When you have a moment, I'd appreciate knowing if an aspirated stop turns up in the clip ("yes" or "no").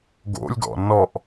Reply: no